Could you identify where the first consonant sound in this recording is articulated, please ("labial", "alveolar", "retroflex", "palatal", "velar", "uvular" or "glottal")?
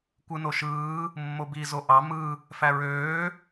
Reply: velar